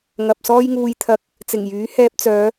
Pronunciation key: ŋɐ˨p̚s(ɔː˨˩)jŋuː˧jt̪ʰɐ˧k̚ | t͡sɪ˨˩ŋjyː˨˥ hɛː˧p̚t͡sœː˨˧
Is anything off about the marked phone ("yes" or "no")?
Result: yes